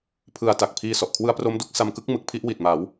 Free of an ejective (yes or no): yes